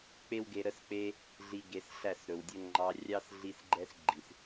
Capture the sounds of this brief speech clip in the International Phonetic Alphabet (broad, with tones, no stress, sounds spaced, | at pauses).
k͡p e˦ w ɡ e˧ ɾ ə˦ s k͡p e˦ | ɮ i˧ ɡ e˨˦ s ɬ æ˦˨ s ɾ ɵ˨ w dʲ ɵ˦ ŋ͡ǃ ɑ˧ rʲ ɑ˦ s ɮ i˦ s ɡ͡ǃ ɛ˦ s ɡ͡ǃ i˨ s